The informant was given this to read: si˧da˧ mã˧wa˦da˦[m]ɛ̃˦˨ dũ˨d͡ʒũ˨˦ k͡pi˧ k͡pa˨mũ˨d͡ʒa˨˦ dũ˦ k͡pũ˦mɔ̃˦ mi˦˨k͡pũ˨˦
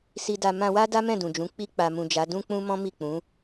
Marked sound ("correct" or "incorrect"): correct